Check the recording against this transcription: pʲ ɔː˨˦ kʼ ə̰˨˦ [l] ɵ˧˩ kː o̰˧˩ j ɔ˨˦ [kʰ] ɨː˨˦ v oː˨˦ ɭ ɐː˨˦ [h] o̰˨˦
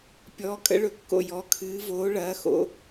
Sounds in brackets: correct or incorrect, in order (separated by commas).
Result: incorrect, correct, incorrect